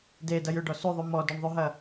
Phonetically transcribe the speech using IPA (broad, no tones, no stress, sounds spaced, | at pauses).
d e d ɐ j ʏ ɖ ɔ s ʉ ðˤ ʉ m ɔ d ʉ ɳ ðˤ ʉ ɦ ɐ